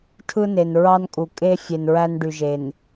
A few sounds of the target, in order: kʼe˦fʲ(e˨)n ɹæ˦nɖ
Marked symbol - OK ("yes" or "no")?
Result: yes